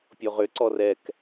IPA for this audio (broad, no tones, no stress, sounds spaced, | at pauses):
pʲ o ʁ ʏ ǀ ɔ r ɛ k